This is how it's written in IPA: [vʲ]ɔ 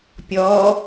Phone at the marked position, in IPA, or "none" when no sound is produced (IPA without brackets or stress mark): pʲ